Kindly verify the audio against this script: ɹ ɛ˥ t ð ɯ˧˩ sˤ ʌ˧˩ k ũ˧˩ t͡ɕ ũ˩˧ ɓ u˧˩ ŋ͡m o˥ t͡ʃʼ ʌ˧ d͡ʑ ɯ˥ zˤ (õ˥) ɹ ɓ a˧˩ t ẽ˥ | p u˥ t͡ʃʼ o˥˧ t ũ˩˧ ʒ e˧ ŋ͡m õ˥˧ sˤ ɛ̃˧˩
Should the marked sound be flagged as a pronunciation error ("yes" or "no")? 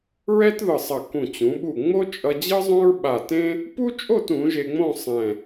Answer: no